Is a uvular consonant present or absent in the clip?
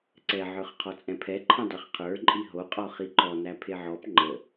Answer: present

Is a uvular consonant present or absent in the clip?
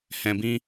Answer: absent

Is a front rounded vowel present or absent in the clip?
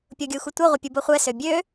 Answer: present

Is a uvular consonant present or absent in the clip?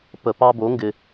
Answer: absent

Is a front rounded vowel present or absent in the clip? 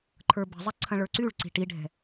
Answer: present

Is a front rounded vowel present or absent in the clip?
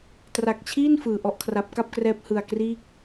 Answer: absent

